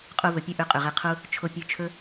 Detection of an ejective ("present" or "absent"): present